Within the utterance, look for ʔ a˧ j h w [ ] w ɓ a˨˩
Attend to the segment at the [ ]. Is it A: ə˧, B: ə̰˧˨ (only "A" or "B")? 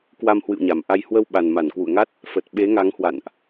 A